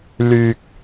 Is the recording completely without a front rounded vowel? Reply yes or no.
no